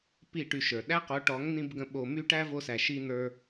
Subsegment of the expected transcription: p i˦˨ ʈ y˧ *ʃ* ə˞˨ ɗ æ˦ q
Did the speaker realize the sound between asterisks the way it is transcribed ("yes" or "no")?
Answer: yes